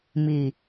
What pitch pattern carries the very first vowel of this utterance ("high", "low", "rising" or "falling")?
low